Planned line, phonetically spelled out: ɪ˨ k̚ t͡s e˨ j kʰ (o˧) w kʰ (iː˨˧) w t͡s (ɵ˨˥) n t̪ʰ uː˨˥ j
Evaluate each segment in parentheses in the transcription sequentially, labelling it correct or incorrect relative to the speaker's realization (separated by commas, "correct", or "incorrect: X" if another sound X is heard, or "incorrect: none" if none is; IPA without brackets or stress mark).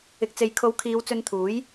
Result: incorrect: o˨˧, correct, incorrect: ɵ˧